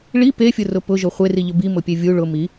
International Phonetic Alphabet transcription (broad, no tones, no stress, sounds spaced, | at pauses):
ɭ i p e fʲ ʊ r ʊ p ʊ ʒ o χʷ e r i ʎ ʊ b i m ʊ pʲ e vʲ u ɭ ʊ m i